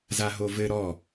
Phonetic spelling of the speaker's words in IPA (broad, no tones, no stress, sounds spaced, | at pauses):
z a ɦ o v ɘ ɾ ɔ